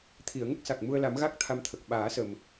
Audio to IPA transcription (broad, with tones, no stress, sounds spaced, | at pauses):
t̪ʰ i˨˩˨ ə̯ ŋ ə˦˥ k̚ s a˨˩ k̚ m u˧ ə̯ l a˨˩˦ m ɣ a˦˥ k̚ t̪ʰ a˧ m t̪ʰ ə˨˩ k̚ ɓ aː˨˩˦ s ə˨˩ m